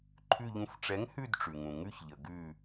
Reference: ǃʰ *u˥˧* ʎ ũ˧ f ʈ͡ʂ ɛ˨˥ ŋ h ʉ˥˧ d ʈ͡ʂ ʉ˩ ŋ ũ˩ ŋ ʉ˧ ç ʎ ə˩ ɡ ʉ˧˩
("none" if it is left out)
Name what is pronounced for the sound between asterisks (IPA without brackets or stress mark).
ʉ˥˧